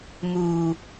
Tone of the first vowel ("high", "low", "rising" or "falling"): low